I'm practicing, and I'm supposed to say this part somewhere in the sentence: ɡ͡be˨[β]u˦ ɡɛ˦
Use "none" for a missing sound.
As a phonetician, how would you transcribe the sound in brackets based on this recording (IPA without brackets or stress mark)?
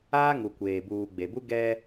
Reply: b